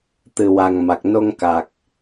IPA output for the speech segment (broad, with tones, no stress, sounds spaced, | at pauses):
t̪ ɨ˨˩ w a˨˩ ŋ m a˨˩ k̚ n o˧ ŋ k a˨˩ k̚